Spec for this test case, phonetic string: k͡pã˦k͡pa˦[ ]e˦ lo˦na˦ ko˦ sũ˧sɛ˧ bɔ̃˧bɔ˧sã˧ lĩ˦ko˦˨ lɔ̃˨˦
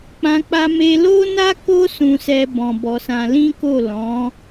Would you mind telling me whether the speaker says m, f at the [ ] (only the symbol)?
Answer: m